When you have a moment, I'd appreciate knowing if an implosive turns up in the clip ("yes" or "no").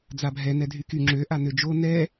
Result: no